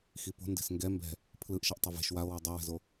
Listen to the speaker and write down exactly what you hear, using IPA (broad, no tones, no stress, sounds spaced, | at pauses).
x i p o̤ n d e̤ s ŋ ɡ ɛ m b ɛ̤ | pʰ l ɯ ʔ ʃ ʌ ʔ tˤ ʌ v e̤ ʃ w a o̯ w o dˤ i w ɛ̤ z o